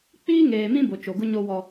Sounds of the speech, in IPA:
k͡p iː˦ ŋ eː˨ m ĩ˦ b o˨ t͡ʃ o˨ ɡ ʊ˦ ɲ o˦ w ɔ˦

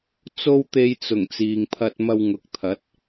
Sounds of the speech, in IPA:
t͡s o˥ w t̪ e˧ j t͡s ʊ˨˩ ŋ t͡s iː˨ ŋ pʰ ɐ˧ t̚ m ɐ˧ w ŋ ʊ˨ k̚ t̪ʰ ɐ˨˥ t̚

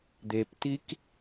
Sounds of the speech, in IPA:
d̪ e p t i k

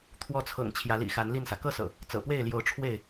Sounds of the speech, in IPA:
t̪ʰ w ɔ˨˦ t͡sʰ ɤ̰˨˩ ŋ t͡ɕʰ j ä˨˦ l ḭ˨˩ x a˨˦ n l i˥˨ n s ä˩ k ɤ˥˨ s ɤ̰˨˩ | t͡s ɤ̰˨˩ p w e˥˨ ɪ̯ l j o˨˦ ʊ̯ ʈ͡ʂʰ w e˥˨ ɪ̯

